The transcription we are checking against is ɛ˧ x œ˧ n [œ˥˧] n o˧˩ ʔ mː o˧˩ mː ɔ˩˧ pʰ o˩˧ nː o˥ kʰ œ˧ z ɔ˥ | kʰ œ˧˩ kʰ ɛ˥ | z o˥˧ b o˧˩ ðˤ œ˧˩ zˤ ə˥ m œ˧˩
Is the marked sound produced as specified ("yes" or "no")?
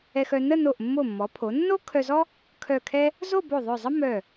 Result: no